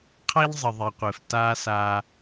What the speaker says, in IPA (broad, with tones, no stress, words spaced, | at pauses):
qʰa˦ʎzˤɪ˨ðˤe˨qʷɪː˨f taː˧ sa˧